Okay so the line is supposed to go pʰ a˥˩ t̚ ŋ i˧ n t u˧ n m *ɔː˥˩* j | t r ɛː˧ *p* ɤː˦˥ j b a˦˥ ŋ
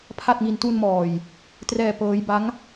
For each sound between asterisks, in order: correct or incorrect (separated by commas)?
incorrect, correct